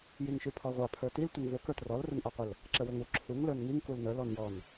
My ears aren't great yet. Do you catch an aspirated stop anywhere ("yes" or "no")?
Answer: yes